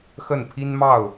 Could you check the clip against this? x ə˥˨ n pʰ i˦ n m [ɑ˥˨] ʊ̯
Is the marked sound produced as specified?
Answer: yes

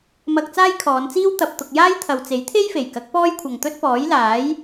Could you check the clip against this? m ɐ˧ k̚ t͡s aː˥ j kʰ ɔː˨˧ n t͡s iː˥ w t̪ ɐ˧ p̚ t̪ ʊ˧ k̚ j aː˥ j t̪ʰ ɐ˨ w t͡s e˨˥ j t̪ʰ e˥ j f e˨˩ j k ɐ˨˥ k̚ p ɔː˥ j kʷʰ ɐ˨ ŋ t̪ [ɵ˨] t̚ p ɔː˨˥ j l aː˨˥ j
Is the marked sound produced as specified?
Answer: no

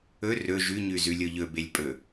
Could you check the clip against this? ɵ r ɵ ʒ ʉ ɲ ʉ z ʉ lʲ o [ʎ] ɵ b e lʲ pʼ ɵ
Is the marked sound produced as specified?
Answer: yes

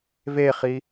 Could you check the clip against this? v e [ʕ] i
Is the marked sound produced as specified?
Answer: no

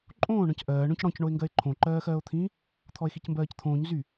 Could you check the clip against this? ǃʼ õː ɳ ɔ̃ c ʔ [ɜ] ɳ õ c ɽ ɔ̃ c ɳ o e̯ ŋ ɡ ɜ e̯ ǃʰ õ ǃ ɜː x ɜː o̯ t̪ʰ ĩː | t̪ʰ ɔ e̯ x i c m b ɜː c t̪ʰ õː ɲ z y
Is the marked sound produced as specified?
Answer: no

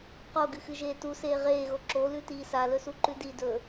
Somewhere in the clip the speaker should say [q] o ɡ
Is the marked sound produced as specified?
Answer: yes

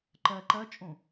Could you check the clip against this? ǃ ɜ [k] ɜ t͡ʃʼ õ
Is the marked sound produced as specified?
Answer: no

